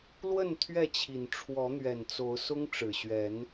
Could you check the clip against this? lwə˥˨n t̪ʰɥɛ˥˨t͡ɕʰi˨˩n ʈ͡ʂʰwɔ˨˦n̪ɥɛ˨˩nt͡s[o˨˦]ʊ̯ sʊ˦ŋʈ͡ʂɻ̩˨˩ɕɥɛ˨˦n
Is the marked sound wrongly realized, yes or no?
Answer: no